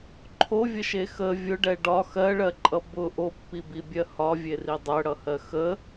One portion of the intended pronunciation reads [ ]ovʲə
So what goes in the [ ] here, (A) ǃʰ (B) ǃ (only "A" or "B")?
A